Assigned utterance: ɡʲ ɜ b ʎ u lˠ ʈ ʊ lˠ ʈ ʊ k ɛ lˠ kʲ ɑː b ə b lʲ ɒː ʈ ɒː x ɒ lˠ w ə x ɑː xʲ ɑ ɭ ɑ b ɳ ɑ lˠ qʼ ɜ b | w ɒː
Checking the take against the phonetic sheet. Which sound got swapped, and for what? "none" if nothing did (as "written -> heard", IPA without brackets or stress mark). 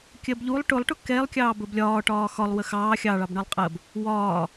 ɡʲ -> kʲ